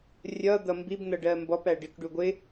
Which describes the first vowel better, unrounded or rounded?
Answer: unrounded